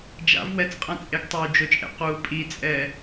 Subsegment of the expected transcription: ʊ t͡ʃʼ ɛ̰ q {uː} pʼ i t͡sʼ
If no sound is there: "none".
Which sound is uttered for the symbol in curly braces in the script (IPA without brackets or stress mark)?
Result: uː